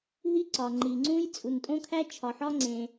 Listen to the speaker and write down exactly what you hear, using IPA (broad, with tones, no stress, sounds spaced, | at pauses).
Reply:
ɦ i˥ ǀ ɒ˩ ŋ͡ǃ i˩ ŋ͡ǀ ũ˥ j t͡sʼ u˩ n tʼ õ˥ kʰ æ˥ t͡ʃʰ ɒ˩ ħ ɒ˥ ŋ͡ǀ ẽ˩